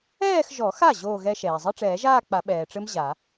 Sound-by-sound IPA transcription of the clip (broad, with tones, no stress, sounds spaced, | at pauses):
ɛː˥˧ x ʒ ɔ˨˩˦ x a˥˩ ʑ oː˥˧ ɣ ɛ˦˥ ʃ ɛː˩ zˤ ɨ˧˥˧ ʈ͡ʂ ɛː˨˩˦ ʒ aː˥˧ k͡p a˨˩˦ ɓ ɛː˩ ʈ͡ʂ ɘ˦˥ m ʑ a˨˩˦